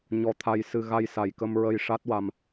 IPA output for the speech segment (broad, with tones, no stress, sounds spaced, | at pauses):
ɲ ɔ˧ t̪ʰ a˧ j s ɨ˧ ɣ a˧ j s a˨˩ j k ə˧ m ɹ ə˧ j ʂ a˦˥ t̚ w a˧ m